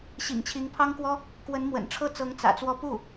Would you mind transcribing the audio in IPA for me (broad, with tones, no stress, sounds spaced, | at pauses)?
ɕ ḭ˨˩ ŋ t͡ɕʰ i˧˥ ŋ pʰ ɑ˥ ŋ k w ɔ˥ | k w ə˧˥ n m w ə̰˨˩ n ʈ͡ʂʰ ɤ˥˩ t͡s ɤ˧˥ ŋ t͡s ä̰˨˩ t͡s w ɔ˥˧ p u˥˩